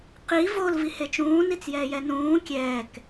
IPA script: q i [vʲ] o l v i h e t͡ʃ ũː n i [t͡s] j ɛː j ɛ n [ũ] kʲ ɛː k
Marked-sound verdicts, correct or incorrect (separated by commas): incorrect, correct, incorrect